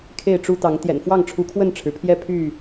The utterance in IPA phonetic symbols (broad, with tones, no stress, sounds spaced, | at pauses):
kʰ e˥˨ ɪ̯ ʈ͡ʂ u˦ t̪ ɑ˨˦ ŋ t̪ j ɛ̰˨˩ n f w ɑ˥˨ ŋ ʈ͡ʂʰ u˨˦ kʰ w ə˥˨ n ʈ͡ʂʰ ɻ̩˩ pʰ j ɛ˦ pʰ y˥˨